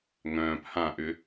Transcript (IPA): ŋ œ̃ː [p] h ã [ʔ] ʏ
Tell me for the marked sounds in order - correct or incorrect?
correct, correct

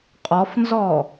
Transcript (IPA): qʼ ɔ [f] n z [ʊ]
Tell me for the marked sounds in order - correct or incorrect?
correct, incorrect: ɔ

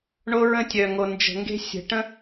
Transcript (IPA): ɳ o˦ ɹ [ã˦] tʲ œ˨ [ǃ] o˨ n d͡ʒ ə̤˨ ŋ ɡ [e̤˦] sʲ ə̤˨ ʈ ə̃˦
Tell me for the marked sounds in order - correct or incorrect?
incorrect: ə̃˦, incorrect: ŋ, correct

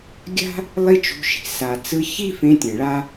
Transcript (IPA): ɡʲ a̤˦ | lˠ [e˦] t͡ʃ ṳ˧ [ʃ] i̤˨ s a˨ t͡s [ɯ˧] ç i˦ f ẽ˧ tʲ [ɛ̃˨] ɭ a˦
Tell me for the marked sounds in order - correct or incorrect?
incorrect: i˦, correct, correct, correct

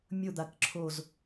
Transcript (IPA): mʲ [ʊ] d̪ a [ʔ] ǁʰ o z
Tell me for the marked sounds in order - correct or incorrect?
correct, incorrect: k

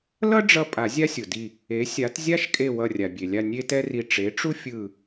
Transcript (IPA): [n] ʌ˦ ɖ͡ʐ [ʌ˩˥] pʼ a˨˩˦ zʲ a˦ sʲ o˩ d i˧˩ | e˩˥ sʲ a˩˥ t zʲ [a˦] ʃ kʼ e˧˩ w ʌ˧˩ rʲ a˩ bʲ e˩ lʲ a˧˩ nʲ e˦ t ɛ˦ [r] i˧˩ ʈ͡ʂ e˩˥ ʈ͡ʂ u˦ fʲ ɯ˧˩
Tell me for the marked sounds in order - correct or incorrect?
incorrect: l, incorrect: ʌ˧˩, correct, correct

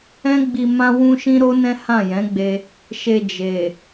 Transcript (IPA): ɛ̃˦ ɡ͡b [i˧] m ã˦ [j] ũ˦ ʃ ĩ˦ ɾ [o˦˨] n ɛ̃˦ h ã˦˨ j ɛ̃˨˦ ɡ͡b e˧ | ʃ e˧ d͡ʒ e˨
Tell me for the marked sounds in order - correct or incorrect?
correct, incorrect: w, incorrect: o˦

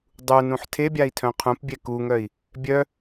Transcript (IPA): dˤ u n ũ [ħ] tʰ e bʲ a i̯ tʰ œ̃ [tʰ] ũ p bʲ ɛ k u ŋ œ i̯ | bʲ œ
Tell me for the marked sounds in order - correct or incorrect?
correct, incorrect: qʰ

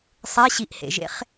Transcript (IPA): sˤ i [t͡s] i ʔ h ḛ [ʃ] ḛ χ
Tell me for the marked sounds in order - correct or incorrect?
incorrect: ɕ, incorrect: ʒ

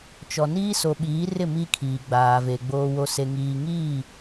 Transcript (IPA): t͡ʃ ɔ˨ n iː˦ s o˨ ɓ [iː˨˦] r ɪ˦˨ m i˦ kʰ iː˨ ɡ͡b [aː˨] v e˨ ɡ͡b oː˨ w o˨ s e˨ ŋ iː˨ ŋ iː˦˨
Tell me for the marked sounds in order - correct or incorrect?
correct, correct

